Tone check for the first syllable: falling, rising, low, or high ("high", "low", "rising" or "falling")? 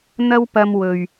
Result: high